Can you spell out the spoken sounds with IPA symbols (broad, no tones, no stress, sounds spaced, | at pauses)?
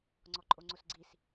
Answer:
ŋ͡ǀ ɔ ǃʼ o ŋ͡ǀ o s ɡ͡ǀ i s